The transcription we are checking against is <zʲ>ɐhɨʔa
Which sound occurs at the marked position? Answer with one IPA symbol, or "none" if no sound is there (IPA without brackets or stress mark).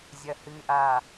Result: zʲ